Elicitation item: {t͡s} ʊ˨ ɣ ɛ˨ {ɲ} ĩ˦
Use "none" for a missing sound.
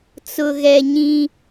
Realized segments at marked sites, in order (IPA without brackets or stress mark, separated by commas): t͡s, ɲ